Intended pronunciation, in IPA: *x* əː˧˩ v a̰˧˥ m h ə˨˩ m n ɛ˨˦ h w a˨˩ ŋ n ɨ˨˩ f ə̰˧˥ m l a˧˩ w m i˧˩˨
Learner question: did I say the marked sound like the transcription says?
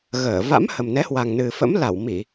no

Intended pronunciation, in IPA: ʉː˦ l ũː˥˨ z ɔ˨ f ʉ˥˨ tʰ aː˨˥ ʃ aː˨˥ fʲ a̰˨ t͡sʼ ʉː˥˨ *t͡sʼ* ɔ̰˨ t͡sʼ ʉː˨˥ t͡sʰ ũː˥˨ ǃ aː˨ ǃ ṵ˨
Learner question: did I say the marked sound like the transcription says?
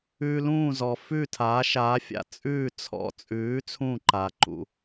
no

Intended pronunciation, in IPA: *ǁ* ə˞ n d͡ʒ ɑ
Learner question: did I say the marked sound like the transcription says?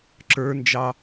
yes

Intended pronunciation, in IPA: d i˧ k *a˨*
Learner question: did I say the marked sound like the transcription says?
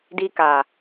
yes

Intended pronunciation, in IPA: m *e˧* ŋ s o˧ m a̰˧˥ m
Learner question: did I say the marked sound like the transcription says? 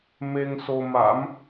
yes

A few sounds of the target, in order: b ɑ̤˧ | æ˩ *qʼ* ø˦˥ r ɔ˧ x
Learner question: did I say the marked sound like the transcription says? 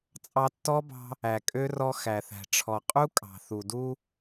no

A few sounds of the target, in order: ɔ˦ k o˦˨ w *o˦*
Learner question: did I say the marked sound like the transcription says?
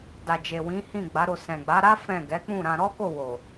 no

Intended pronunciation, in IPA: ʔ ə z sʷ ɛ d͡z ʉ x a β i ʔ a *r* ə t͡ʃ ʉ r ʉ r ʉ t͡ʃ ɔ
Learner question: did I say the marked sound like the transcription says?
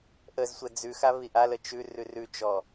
no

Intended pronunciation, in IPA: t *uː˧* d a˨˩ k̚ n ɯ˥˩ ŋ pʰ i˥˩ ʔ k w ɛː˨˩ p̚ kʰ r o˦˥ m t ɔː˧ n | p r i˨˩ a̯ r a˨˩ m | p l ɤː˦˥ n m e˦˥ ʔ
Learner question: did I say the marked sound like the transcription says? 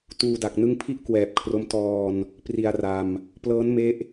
yes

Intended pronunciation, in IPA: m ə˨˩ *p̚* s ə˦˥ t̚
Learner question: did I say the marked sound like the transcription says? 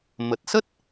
no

